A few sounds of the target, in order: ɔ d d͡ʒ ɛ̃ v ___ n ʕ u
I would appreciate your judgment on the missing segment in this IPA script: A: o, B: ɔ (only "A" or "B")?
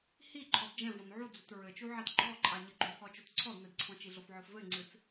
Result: B